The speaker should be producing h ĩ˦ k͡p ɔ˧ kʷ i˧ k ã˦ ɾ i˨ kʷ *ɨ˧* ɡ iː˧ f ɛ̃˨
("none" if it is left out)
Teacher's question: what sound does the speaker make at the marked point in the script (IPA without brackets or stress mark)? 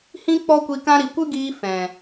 ɨ˦